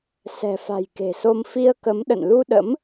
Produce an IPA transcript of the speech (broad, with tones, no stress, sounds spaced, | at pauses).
s ɛ̤˨˩ f a̤˨˩ j k e̤˨˩ s o˧ m f i˧ ə̯ k ə˨˦ m ɗ ə̰˧˨ n l u˧ ɗ ə̰˧˥ m